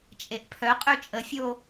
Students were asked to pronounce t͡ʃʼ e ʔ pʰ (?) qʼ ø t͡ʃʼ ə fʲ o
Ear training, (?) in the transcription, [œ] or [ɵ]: œ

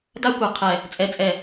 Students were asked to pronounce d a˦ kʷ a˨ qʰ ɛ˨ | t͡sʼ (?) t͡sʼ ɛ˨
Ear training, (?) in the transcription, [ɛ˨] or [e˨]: ɛ˨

